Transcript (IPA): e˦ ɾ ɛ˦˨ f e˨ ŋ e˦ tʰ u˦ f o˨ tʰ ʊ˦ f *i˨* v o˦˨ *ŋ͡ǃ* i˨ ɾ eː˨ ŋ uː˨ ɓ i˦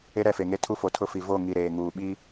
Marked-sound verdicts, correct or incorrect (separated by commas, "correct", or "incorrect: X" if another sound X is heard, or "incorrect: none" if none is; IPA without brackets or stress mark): correct, incorrect: ŋ